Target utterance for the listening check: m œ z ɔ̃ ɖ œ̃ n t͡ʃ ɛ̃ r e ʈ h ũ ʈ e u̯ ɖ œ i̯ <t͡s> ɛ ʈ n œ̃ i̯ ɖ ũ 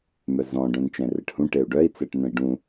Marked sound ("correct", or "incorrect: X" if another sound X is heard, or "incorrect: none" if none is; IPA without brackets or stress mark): correct